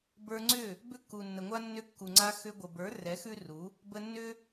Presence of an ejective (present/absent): absent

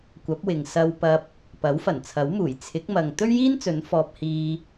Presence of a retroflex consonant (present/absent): absent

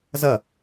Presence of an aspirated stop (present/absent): absent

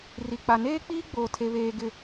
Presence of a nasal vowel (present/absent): absent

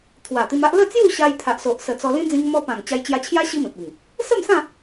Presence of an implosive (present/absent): absent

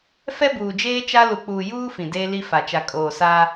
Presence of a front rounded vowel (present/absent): absent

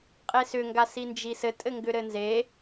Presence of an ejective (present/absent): present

